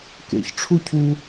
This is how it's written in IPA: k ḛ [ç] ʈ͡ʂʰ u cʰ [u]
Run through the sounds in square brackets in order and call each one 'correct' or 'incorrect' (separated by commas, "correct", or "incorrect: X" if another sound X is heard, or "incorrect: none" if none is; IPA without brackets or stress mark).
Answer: correct, correct